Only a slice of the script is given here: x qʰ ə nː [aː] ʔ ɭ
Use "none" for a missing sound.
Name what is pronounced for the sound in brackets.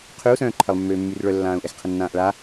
ãː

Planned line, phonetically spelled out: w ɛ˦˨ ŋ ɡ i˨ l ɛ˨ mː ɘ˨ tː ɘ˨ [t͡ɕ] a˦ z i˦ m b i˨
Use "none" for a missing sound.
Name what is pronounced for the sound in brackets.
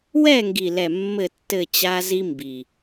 t͡ɕ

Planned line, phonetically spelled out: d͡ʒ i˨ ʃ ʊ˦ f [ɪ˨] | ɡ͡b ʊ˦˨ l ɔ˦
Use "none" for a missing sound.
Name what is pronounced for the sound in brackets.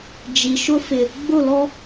ɪ˨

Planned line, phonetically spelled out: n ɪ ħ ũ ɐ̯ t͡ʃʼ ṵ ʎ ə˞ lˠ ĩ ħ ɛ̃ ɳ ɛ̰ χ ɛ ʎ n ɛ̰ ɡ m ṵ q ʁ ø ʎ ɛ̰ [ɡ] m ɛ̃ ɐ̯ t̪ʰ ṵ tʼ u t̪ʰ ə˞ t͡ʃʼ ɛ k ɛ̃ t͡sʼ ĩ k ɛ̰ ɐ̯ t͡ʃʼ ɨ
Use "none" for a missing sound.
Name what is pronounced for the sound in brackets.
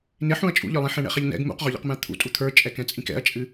q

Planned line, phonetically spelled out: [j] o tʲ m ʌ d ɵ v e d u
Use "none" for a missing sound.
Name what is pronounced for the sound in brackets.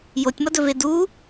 j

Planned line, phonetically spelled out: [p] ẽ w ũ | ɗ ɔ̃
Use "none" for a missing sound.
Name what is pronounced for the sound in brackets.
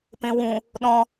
p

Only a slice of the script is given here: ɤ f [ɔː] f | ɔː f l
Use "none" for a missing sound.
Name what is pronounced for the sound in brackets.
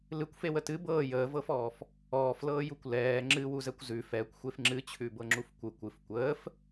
ɔː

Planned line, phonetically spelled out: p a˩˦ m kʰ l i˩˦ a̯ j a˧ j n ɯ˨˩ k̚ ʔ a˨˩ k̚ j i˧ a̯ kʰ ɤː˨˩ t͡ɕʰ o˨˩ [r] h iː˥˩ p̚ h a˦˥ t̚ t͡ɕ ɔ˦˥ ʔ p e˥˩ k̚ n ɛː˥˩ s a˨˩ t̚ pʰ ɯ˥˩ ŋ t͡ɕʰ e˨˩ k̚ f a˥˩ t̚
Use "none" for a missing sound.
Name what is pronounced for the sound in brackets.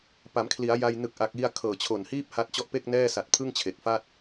n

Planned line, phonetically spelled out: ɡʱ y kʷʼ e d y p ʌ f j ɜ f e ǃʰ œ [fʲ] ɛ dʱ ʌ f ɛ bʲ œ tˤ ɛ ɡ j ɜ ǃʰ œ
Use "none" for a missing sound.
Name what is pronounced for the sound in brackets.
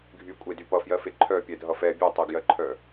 pʲ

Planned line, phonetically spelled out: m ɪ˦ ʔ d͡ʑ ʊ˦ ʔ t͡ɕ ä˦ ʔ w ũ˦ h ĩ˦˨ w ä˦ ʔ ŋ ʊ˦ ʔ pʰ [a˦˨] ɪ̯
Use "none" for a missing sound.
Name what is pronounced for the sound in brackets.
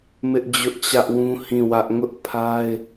a˦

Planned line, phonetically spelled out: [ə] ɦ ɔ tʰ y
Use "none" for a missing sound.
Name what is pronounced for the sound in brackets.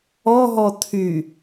ɔ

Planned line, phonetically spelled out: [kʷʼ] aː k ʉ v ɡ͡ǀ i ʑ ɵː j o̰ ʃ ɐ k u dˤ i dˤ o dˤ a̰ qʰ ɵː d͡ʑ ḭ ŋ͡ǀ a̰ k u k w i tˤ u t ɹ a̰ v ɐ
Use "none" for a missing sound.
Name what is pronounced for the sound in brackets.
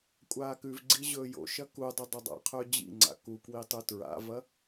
kʷʼ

